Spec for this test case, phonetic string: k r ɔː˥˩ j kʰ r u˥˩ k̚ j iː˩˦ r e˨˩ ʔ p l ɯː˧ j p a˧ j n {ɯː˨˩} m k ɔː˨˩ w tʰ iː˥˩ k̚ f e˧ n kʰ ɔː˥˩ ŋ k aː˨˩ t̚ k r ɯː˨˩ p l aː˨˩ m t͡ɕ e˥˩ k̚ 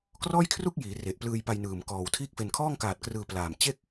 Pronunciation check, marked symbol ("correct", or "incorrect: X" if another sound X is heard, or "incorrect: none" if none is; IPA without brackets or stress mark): correct